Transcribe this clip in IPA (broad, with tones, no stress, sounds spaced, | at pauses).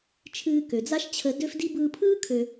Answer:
t͡ʃʰ ɨː˧ k ø˩ d͡z a˥ ʃ t͡ɕʰ ə˧ d ø˥ f d i˥ b ɯː˧ pʰ ɯː˥ kʰ ø˧